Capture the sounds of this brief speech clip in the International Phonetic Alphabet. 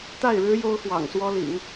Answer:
t̪ a˥˩ ɪ̯ ɻ ɻ̩˥ j o˥ ʊ̯ x w ɑ̰˨˩ ŋ s w ɔ˥ l ḭ˨˩˦ ŋ

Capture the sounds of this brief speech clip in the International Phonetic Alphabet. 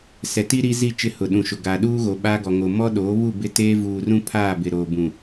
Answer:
s ɛ˨ t i˦ ɾ i˦ z i˦˨ t͡ʃ ɪ˦˨ h ʊ˨ ɗ ũ˨ ʃ ʊ˨ ɡ a˨ ɗ uː˦ ɣ o˨ ɓ aː˦ ɡ ɔ˨ ŋ o˨ m ɔ˦ ɗ oː˨˦ β u˦˨ b ɪ˦˨ t eː˦ v uː˨ r ũ˦ pʰ aː˦˨ b ɪ˨ ɾ oː˨ b ũ˨

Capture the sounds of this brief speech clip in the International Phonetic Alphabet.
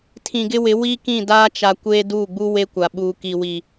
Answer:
tʰ ĩ˨ ɡ ɪ˦ w ɪ˨˦ w i˦ k ĩ˦˨ d aː˦ t͡ʃ a˨ kʷ eː˦ d uː˦˨ ɡ͡b u˦ w e˦ kʷ a˨ ɓ uː˨ k i˨ w i˨

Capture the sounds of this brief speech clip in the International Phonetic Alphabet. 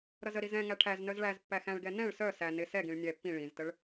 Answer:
ɾ ʌ z ə ɾ i z ɛ̃ ŋ æ ʈʰ æ z n œ z ɭ æ z pː æ x æ̃ ɭ ɡ ɛ n ɛ̃ ɭ s œ s æ n ɪ s ɛ ɡ ĩ ɭ nʲ ɛ pː ĩ ɭ ĩ z t ə ɭ

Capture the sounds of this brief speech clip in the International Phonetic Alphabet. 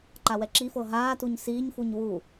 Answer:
ǃ a w ɛ ǁ i f ɤ ɦ aː t u ɲ s iː ɲ f u ɲ w u

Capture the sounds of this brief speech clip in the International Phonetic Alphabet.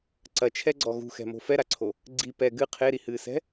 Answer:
ǀ ɐ t͡ʃʰ ɛ ɡ͡ǀ ɔ ɣ ṳ x ɛ̤ m o̤ f ɛ ɾ a ǀʰ o | ɡ͡ǀ i p ɛ ɡ ɨ qʰ e ɾ i h ɨː s ɛ̤

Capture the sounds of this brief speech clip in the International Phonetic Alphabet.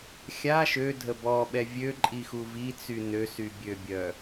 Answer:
xʲ a ʃ ø dʱ ə b ɔ ɓ ɛ vʲ ø ǃʼ i x u v i t͡s y n ø s y bʲ ø bʲ œ

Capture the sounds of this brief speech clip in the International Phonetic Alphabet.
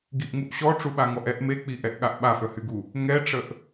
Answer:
ɡ i ʔ ŋ u ʔ ɕ ɔ ʈ͡ʂ u ɓ a ŋ ɔ ʔ ɛ ʔ m e k͡p i ʔ ɛ ʔ ɠ a ʔ ɓ a f œ h y ɡ u | ŋ ɛ ʈ͡ʂ ə ʔ

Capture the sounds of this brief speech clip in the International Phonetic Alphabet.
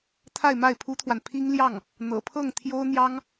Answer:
t̪ʰ a˥˧ ɪ̯ m a˥˩ ɪ̯ pʰ u˥ t̪ʰ w a˨ n pʰ i˥ ŋ l j ɑ˥˩ ŋ | n̪ ɤ̰˨˩ pʰ ɤ˥˩ ŋ t̪ʰ j o˥ ʊ̯ n̪ j ɑ˥ ŋ

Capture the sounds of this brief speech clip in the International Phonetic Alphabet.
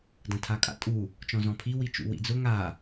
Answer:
d ɐ̃ tʰ a kʼ a̰ tʼ u | t͡ʃ ɔ̃ z ɔ̃ pʰ i w i t͡ʃ ṵ w ḭ d͡z ʊ ŋ a

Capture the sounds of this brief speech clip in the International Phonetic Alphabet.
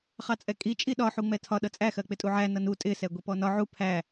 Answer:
χ ɑ t͡sʼ ɛ kʼ i t͡ʃʼ i ɗ ɒ ħ u ŋ͡m ɛ tʰ ɒ ɗ ʌ t͡sʼ æ x ɜ k͡p ɪ tʼ u ʕ æ n ʌ n u tʼ ɪ s ɛ ɡʷ i p ɔ n ɒ ʕ u pʰ æ

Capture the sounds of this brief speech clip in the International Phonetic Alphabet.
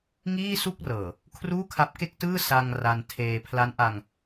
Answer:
ŋ iː˥˩ s u˥˩ k̚ r ɤː˨˩ | kʰ r uː˥˩ kʰ a˦˥ p̚ k e˥˩ k̚ t ɯː˥˩ s a˧ ŋ r a˧ n tʰ eː˧ pʰ l a˦˥ n ʔ a˧ ŋ

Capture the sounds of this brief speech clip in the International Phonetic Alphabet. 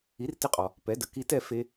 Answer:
i˩˥ r t ɪ˧ qʼ ɔ˩ | p ɛ˩˥ d ə˩ k i˧ t ɛ˥˩ f e˧

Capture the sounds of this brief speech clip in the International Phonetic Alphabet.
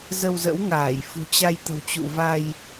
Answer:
z ə˧ w z ə̰˧˥ w ŋ aː˧˩ j f ṳ˨˩ t͡ɕ a˧ j t̪ ə̤˨˩ w t͡ɕ ṵ˧˨ v a˧ j

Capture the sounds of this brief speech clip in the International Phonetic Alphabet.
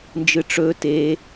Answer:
n d͡ʒ ɨ ʈ͡ʂ ɵ t e

